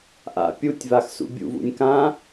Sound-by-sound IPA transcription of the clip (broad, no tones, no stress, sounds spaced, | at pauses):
ʔ a̰ pʲ u tʲ v a x s ṵ bʲ ṵ v ṵ nʲ k ã